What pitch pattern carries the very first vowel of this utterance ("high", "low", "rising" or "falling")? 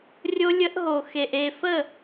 high